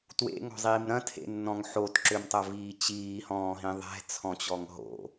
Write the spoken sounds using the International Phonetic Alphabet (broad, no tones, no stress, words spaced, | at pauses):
twḛŋɔ̤zˤiːm ɾɐ̃tʰḛnːɔ̃ŋ ħotǁømtˤɐviː t͡ɕiːhɔ̃ːɦĩ ðˤɛ̤t͡sʰɔ̃t͡ɕɔŋ ɦo̰